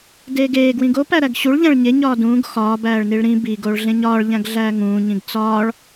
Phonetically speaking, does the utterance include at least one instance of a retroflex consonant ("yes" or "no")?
yes